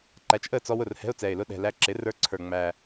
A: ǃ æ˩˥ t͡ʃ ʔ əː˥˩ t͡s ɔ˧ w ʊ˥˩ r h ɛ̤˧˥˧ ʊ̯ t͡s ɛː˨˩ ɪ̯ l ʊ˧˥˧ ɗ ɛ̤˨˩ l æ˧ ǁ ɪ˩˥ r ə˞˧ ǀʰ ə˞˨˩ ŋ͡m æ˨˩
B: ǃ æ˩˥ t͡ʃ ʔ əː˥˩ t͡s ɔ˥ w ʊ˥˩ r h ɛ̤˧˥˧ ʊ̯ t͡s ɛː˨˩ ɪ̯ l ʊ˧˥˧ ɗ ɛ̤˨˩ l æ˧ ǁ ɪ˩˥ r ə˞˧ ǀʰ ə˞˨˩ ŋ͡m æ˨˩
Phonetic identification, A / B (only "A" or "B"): A